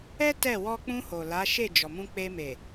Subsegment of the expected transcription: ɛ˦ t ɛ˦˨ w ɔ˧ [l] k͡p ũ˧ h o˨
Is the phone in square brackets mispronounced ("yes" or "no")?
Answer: yes